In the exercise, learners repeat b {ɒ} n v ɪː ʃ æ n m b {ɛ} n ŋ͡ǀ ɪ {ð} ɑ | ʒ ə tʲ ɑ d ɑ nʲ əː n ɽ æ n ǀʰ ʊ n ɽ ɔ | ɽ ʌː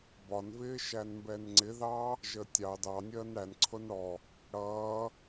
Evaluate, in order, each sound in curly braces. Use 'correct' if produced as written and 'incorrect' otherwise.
correct, correct, correct

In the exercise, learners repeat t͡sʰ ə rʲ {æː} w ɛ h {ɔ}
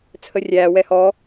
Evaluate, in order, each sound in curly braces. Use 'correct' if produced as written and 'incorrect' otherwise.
correct, correct

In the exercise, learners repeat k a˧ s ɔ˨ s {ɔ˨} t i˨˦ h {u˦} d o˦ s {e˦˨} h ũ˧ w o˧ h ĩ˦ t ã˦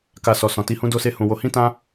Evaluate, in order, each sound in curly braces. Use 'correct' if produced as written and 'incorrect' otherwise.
incorrect: ɔ̃˨, incorrect: ũ˦, incorrect: e˦

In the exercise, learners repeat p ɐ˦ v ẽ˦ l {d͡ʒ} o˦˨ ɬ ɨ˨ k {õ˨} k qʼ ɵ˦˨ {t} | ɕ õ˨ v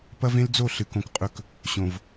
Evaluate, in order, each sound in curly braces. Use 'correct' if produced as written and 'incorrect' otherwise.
incorrect: d͡z, correct, incorrect: k

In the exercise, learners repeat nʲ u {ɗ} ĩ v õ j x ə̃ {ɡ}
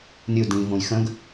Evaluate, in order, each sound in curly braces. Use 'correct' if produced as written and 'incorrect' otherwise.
incorrect: d, correct

